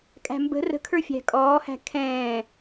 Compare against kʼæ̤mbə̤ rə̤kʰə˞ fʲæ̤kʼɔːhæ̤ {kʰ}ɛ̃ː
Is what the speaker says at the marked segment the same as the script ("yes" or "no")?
yes